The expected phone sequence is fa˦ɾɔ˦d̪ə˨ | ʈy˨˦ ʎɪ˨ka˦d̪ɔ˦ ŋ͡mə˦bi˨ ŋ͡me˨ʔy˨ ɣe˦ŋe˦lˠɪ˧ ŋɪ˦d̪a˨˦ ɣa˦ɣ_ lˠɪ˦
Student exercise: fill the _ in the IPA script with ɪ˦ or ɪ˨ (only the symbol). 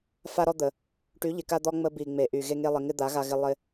ɪ˦